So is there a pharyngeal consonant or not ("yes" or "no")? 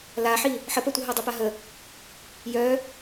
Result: yes